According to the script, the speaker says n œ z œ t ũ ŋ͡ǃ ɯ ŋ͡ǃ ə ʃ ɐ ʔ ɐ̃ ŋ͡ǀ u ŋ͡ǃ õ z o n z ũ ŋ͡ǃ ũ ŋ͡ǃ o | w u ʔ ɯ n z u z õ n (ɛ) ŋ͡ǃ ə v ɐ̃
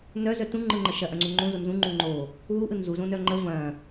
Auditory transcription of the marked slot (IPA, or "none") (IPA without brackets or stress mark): œ